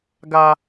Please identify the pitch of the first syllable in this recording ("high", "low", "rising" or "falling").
high